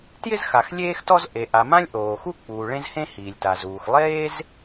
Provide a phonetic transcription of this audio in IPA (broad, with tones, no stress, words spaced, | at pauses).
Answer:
tjɪ˥zxa˩x lʲeː˥xtɔ˥z ʔe˩ʔa˩mã˥lʲ ʔoː˩xu˥ k͡puː˩ɭẽ˥z hẽ˥ hiː˩lʲta˩zuː˩x lˠeː˥z